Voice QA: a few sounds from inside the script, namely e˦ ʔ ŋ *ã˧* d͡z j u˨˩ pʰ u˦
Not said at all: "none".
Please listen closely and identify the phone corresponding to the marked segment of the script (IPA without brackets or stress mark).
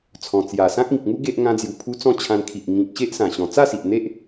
ã˧